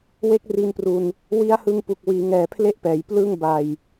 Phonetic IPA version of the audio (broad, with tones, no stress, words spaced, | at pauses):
we˦˥k̚ri˧npru˧n | wi˦˥a̯hɯ˧ŋpu˨˩k̚ wiː˩˦ŋɛː˨˩ pʰle˥˩ʔpɛː˩˦jplɯ˥˩ŋ ba˧j